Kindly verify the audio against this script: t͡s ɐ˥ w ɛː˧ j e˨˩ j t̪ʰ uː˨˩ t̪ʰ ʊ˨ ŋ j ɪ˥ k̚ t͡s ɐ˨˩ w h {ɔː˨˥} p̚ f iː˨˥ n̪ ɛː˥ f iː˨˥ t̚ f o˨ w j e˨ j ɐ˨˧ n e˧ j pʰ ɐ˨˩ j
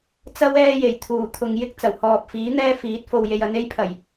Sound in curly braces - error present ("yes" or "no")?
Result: yes